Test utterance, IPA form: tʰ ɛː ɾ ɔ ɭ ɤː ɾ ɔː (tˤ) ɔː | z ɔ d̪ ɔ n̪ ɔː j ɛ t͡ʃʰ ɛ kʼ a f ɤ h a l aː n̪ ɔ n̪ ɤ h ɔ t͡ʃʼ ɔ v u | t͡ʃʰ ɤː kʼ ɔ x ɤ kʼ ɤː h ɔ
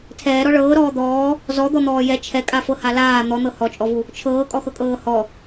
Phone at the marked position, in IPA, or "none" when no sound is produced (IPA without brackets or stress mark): d̪